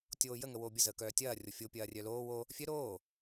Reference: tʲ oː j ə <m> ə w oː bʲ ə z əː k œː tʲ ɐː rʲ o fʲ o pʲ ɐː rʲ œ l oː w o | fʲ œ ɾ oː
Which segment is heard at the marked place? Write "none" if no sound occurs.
ŋ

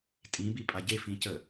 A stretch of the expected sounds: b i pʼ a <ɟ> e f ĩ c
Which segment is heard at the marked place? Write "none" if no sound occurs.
ɟ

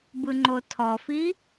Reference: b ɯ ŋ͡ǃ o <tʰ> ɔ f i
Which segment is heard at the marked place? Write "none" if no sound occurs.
tʰ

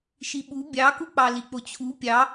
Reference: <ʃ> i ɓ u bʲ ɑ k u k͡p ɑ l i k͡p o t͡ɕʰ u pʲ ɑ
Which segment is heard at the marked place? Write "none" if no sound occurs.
ʃ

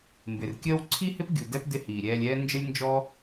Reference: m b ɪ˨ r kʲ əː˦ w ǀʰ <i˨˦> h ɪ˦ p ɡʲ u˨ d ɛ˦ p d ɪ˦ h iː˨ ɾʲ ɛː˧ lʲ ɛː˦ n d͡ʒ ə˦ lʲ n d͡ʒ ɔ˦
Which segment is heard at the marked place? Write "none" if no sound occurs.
i˦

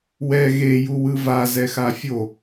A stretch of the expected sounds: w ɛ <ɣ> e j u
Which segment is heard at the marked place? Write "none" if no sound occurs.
ɣ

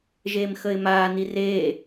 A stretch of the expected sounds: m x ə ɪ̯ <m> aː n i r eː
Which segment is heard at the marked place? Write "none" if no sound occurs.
m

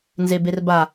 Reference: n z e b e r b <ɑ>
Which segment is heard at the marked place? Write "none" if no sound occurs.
a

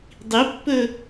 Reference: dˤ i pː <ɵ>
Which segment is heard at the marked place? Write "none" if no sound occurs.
ɵ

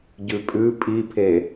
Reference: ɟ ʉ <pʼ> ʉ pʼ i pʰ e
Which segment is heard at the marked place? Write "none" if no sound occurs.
pʼ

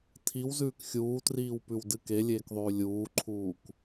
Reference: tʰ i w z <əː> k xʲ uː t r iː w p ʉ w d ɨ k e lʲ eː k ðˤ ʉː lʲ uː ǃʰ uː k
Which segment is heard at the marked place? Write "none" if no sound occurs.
ʉː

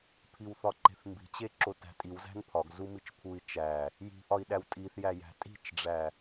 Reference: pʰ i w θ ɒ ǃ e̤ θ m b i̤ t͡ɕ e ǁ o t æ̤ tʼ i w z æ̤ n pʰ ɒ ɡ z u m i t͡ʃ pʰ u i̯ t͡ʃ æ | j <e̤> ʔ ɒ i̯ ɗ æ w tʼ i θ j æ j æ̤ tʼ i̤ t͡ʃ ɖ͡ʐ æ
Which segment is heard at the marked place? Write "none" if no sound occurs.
i̤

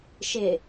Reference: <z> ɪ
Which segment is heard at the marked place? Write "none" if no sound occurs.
ʃ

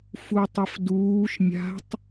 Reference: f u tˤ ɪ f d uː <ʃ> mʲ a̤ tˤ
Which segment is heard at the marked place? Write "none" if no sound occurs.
ʃ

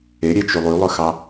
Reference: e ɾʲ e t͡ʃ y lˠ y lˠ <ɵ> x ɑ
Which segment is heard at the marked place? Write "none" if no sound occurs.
ɵ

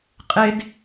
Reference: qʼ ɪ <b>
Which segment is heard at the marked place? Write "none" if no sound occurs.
d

